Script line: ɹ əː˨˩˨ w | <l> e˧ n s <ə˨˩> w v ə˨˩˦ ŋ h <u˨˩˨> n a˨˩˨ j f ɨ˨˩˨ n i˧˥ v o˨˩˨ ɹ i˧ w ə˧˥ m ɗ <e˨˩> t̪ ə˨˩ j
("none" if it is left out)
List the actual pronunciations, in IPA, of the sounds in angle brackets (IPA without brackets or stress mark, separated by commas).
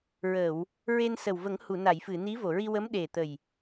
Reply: ɹ, ə˨˩, u˨˩˨, e˨˩